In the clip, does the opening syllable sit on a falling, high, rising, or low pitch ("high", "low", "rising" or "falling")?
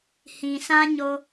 low